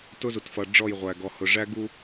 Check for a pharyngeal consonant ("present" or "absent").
absent